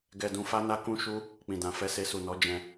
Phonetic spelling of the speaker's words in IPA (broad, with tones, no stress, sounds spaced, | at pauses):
ɡ ɛ˧ d ũ˧ f a˦ n a˦ k ũ˦ ʃ u˦ | k͡p ĩ˨ d ã˨ f ɛ˧ s e˧ s u˨ n ɔ˨˦ d͡ʒ ɛ̃˧